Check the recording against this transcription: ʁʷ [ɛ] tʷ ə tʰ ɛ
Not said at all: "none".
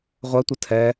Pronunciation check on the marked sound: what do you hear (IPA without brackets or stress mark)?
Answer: ɛ